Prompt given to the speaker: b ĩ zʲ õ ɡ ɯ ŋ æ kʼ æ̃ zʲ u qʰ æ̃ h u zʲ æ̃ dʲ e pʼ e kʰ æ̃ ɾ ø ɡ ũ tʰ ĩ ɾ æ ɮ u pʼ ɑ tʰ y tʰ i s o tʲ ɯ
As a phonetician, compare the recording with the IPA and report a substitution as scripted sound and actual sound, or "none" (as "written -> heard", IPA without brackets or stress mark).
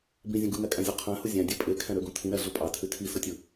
none